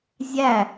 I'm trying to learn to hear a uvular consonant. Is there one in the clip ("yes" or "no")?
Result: no